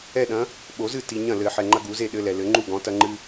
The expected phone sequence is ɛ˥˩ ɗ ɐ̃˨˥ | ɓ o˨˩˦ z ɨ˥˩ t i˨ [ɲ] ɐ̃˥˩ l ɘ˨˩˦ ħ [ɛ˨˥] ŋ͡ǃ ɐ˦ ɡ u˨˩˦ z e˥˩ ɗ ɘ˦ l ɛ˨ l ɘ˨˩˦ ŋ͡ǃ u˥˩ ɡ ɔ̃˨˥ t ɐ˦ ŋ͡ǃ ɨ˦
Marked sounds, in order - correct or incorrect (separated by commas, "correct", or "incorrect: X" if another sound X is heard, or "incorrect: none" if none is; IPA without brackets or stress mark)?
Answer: correct, incorrect: ɛ˨